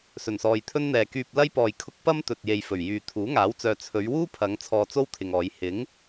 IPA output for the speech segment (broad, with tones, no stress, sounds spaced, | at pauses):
s ɵ˨˩ n s ɔː˨ j t̪ʰ ɵ˥ n n̪ ɛː˨ k yː˧ p̚ l ɐ˥ j p ɔː˧ j kʰ ʊ˥ k̚ p ɐ˥ m t̪ ɵ˨ t̚ j e˨ j f ɵ˨˩ ɥ j yː˨ t̪ʰ uː˨˥ ŋ aː˨˥ w t͡s œː˨ t͡sʰ ɵ˨˧ ɥ w uː˥ pʰ ɐ˨˧ ŋ t͡sʰ ɔː˧ t͡s o˥ w t̪ʰ ɪ˨ ŋ ɔː˨˧ j h ɪ˨˥ ŋ